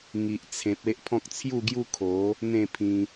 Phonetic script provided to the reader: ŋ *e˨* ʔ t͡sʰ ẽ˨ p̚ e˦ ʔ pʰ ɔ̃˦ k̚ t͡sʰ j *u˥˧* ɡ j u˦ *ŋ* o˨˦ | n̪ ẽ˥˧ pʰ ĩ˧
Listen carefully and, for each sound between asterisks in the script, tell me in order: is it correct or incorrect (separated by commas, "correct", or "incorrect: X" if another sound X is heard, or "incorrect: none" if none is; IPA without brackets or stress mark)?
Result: incorrect: i˨, correct, incorrect: kʰ